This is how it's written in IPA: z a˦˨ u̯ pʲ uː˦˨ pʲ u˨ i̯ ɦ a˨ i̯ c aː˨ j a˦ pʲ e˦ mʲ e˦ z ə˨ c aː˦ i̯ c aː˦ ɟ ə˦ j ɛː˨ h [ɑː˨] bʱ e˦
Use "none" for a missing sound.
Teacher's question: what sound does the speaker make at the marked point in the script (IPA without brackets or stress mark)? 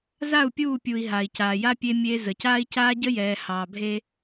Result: ɑː˨